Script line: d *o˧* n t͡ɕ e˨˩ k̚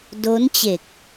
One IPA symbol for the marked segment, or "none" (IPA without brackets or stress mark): o˦˥